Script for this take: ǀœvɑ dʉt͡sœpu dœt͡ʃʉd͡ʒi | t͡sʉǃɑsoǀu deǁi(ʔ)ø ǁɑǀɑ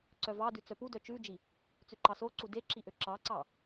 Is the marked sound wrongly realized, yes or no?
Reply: no